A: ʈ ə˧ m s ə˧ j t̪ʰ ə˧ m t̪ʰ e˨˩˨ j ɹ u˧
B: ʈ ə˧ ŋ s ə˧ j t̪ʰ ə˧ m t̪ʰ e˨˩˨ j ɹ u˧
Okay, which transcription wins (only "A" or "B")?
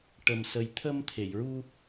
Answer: A